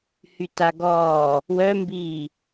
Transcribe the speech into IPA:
h y t a ɡ ɔː | w œ m b iː

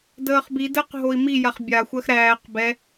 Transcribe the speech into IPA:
d əː χ b i d əː q ɦ o i̯ m i j a χ bʲ a xʷ ɜ x ɾ æː q b ɛ

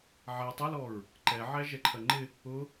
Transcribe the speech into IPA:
ʕ æ tˤ ʊ l ɔ ɹ | ǃ ɛ ʕ æ ʒ ɛ ǃʰ ɜ ŋ͡ǃ ɪ | ʊ

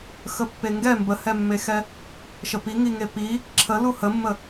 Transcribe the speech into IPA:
x ə pː e ŋ ɡ ɛ m b ə h ɛ mː e x ɛ | ʃ ə p i ŋ i ŋ e p i | ǁʰ ə l u h ə mː ə

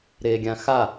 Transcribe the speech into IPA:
ɾ e ɡʲ ã x a

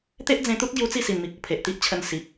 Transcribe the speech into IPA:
t̪ e˦ ʔ d͡z ẽ˧ t̪ u˦ t̚ ɡ j u˦ t͡s i˥˧ s i˨˩ n m i˨ k̚ u˨˩ pʰ e˨ ʔ t̪ i˦ ʔ t͡ɕʰ ə˧ n s i˨ p̚

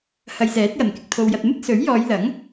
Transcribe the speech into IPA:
h ɐ˨ j s ɛː˨˥ t̚ j ɐ˨˩ n k ɪ˨ k̚ t̪ʰ o˨ w j ɐ˨ t̚ m ɪ˥ k̚ s ɵ˨˥ ɥ j ɔː˨˧ j l ɐ˨˥ ŋ

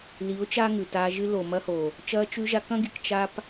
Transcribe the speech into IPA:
l i˨˦ ʊ̯ t͡ʃ a˦ ŋ ʉ˨ t aː˧ ʒ ɨ˧ l o˨ m ɐ˧ h o˨ | t͡ʃ ɐː˧ t͡ʃ ʉ˧ ʒ a˧ k ɐ̃˧ ɡ i˨ k t͡ʃ a˧ p

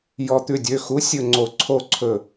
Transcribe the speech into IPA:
j ɔ˨˩˦ t̪ ʉ˩˧˩ dʲ ø˩˧˩ x u˨˥ sʲ ɵ˧˩ ŋ͡ǀ o˨˩˦ ǀʰ o˧˩ ǀʰ ɵ˧˩

